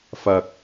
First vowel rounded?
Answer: no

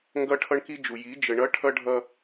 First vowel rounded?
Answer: no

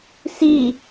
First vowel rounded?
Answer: no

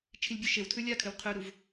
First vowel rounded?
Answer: no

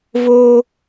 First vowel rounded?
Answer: yes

